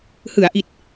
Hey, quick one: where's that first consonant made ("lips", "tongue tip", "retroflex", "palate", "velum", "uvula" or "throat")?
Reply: throat